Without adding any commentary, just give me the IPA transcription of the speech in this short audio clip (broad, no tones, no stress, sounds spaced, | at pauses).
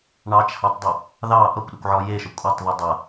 ɳ ɑ t͡ʃ h ɑ tˤ dˤ u | ð ɑ ʔ ʌ kʷ ɗ ə kʷ ʕ ɔ j e ʃ ə kʷʼ ɑ tˤ ð u dˤ ʌ